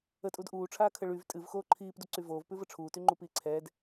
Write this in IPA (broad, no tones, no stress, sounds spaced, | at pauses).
ə tʼ u d ʔ uː ʈ͡ʂʰ aː kʰ ə ɭ y v tʼ ɨ v x oː ǃʰ iː p d u ǀ y v oː v p ʉ v ə ʈ͡ʂʰ uː t y ŋ͡ǃ u p iː ǀʰ ɛː d